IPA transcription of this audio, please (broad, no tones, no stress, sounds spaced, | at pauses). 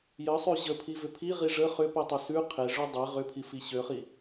j ə sˤ ʉ ʑ ə pʰ i v ʏ pʰ i ʁ i ʐ ə χ ʏ p i tˤ ʏ s ʉ qʰ e ʐ ʉ dˤ e ʁ ʏ pʰ i f i ɕ ø χ i